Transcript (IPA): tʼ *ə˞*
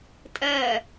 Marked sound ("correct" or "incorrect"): incorrect